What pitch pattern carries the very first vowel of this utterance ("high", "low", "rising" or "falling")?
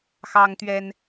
high